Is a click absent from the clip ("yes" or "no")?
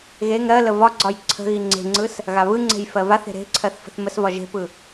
no